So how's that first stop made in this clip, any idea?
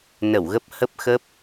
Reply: plain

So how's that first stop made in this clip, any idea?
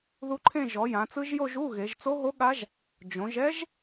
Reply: click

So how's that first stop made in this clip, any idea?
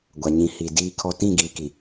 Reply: plain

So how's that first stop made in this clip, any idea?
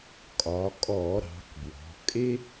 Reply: ejective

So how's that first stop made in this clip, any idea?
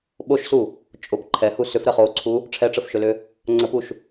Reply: implosive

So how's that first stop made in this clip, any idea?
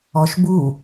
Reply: plain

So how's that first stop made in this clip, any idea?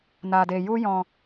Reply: plain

